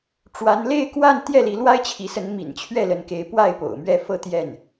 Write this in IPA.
ʈ͡ʂ w a˧˥ n l e˥˧ ɪ̯ k w a˥˧ n t̪ j ɛ˥˩ l i˧˥ l w a˥ ɪ̯ t͡ɕʰ i˧˥ s ə˧˥ n m ḭ˨˩ n t͡ɕʰ ɥ ɛ˥˩ l ə˧˥ n k e˧˥ ɪ̯ p w a˥˩ ɪ̯ p o̰˨˩ ʊ̯ m ɥ ɛ˥˧ f ɤ˥˧ t̪ j ɛ˥˩ n

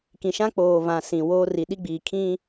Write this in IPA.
k ĩ˨ ʃ ã˦ k͡p oː˨ v ã˨ s ĩ˨ w oː˦ r i˨ ɗ i˦ ɡ͡b iː˨ kʰ ĩ˦

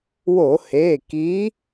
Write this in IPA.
w o˧˩˧ h e˩˧˩ k i˨˥

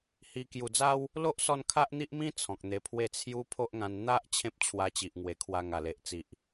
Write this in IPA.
h i˧ k j u˨˩ d͡z a˦ w | l o˦ ʔ s ɔ˧ n kʰ a˦ ʔ n̪ i˦ ʔ m ĩ˦ t͡sʰ ɔ̃˨ k̚ n̪ e˧ pʰ w e˥˧ t͡sʰ j u˦ pʰ o˦ ʔ ŋ ã˧ n n̪ a˦ ʔ t͡ɕʰ ẽ˦ p̚ t͡ɕʰ w a˧ t͡ɕ i˨ ʔ ŋ w e˨˩ kʰ w a˧ ŋ a˨˩ l e˨ ʔ t͡s i˨ ʔ

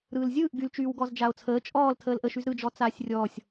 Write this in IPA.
ɾ ɯː l zʲ ɯː ʔ ɡ y l t͡ʃ yː w ɡ ɔ z d͡ʒ a o̯ t͡sʰ əː t͡ʃʼ ɔː l tʰ əː l ʔ ə ʃ y z ɾ ɯ d͡ʒ ɔ t͡s aː sʲ rʲ ɔː sʲ

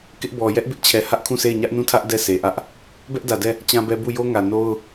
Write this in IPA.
k ɪ˦ ʔ b ɔ˨ j ɛ˦ ʔ b ɪ˦ ʔ t͡ɕʰ ɛ˨ h ä˦ ʔ kʰ ũ˦˨ s e˦˨ ɪ̯ ɲ ä˦ ʔ n ũ˦˨ tʰ ä˦ ʔ d ɛ˦˨ sʰ e˨ ʔ ä˦ ʔ | b ɛ˦ ʔ d ä˨ d ɛ˦˨ | t͡ɕ ã˦ b ɛ˦ b u˦˨ j o˦ ŋ ä˨ n o˦ ʊ̯

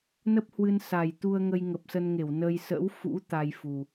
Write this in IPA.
n ə˦˥ p̚ h w ɨ˧ n s a˨˩ j t̪ u˧ ə̯ ŋ ə˧ j ŋ ə˨˩ p̚ s ə˧ n ŋ e˧˩ w n ə˧ j s ə̰˧˥ w f ṵ˧˥ t̪ a˧ j f u˨˩

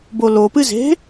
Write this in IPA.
b o l o p ɨ z e̤

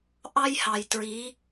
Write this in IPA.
ʔ ɑ˦ j h ɑ˨ j t ɹ i˨˦

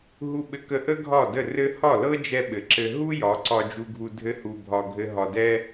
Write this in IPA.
ɦ u˧ ɓ ɘ˧ k ə˧ ʔ ə˦ ɡʱ ɒ˦˨ d ə˦˨ r ɘ˦ h ɒ˦˨ l ɤ˦ d͡ʒ ɛ˧ ɓ ɘ˨ ǁ ɘ˧ ɦ u˦ j ɒ˨˦ ǀ ɒ˧ d͡ʒ u˧ ɡʱ u˧ dʱ ɘ˦ h u˧ bʱ ɒ˧ ɡʱ ɘ˦ ɦ ɒ˧ d ɛ˦

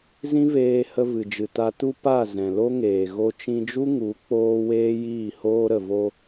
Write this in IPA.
z ĩ˦ v eː˧ h ə˧ v ɨ˨ d͡ʒ ɨ˨ t a˧ t u˦ p a˦˨ z ɛ̃˨ l o˦ ŋ eː˨ ɣ o˧ t͡ʃ ĩ˧ d͡ʒ u˦ ŋ u˨˦ k͡p oː˦ w eː˦ j iː˦˨ h oː˦ ɾ ə˨ v o˧

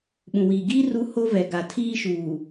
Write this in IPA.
ɓ ũ˨ w iː˨ ɡ iː˦ r u˦ h o˦ v ɛ˨ ɡ a˨ tʰ iː˦ ʃ uː˨

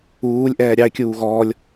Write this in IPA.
uː lʲ ʔ ɛː ɾʲ ɑ ɪ̯ kʲ uː ɣ ɔː lʲ

